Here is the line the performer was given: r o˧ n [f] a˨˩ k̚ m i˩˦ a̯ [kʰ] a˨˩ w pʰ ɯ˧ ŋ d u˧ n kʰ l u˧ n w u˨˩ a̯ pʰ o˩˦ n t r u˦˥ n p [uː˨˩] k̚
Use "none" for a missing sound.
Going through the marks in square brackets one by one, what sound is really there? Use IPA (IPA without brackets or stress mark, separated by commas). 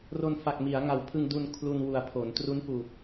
f, ŋ, uː˨˩